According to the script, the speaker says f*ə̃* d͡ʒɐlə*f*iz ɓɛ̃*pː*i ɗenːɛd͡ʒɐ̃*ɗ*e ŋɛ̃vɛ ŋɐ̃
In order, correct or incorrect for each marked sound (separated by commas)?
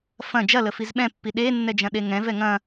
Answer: incorrect, correct, correct, correct